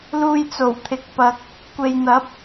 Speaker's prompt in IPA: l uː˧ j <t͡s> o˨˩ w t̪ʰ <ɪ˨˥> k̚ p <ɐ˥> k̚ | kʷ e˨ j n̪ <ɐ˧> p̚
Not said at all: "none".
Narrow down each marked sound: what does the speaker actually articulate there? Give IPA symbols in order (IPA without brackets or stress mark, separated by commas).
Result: t͡s, ɪ˨, ɐ˨, ɐ˨˥